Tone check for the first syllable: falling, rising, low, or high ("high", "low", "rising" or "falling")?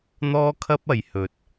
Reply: high